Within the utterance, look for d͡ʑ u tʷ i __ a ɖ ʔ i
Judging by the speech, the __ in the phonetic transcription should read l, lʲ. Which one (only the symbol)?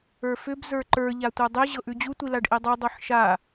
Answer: l